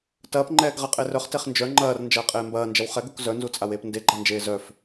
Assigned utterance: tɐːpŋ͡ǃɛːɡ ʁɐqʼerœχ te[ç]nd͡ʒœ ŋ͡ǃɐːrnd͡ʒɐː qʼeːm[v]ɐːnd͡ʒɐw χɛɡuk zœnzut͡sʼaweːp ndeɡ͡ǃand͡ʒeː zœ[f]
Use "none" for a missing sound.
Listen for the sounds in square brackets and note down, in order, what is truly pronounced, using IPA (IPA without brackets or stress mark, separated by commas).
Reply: χ, b, f